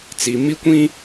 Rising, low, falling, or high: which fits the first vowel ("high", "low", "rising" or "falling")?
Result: low